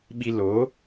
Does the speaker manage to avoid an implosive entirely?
no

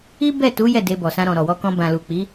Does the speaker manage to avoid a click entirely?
yes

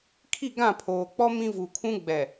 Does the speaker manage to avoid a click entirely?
yes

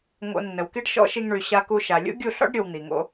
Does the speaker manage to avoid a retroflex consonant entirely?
no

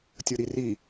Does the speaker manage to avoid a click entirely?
yes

